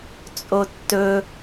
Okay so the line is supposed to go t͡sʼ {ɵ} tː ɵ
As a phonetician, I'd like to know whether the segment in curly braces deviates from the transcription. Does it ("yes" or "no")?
yes